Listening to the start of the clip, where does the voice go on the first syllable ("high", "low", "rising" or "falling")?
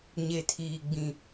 low